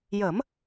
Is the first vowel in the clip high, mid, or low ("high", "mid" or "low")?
mid